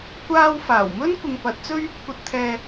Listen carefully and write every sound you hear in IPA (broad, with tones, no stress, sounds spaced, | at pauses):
kʷ aː˧ w f aː˨˩ w m ɵ˥ n kʷ ɪ˨ ŋ p ɐ˨˥ t̚ t͡s ɵ˥ ɥ | kʷ ɐ˧ t̚ t̪ʰ ɛː˧